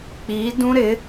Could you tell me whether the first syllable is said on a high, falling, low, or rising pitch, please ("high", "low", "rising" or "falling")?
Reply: rising